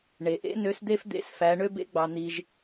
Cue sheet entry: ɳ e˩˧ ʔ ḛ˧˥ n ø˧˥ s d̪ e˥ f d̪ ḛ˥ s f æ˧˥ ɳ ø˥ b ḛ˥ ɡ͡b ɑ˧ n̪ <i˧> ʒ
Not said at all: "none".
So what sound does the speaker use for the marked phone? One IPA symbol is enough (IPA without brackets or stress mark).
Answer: i˧